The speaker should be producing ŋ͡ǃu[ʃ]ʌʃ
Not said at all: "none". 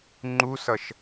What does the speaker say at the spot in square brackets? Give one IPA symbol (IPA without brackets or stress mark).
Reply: s